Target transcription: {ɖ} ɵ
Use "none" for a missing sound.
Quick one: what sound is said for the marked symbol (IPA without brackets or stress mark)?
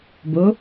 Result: b